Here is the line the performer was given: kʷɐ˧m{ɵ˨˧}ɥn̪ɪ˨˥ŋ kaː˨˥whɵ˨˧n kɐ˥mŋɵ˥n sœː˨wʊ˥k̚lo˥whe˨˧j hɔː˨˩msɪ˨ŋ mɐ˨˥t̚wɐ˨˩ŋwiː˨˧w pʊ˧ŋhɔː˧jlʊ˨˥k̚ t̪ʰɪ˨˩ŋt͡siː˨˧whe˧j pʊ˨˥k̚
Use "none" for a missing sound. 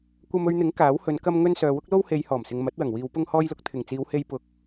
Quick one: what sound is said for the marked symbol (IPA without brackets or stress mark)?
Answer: ɵ˧